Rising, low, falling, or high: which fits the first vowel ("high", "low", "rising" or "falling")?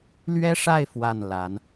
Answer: high